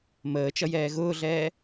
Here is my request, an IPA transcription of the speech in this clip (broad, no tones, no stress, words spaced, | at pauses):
məːt͡ʃʌjɛː ɣʊːɮɛː